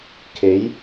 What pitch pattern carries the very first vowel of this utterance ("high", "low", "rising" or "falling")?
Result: rising